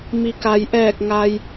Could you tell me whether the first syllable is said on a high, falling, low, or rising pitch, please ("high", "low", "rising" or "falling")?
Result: low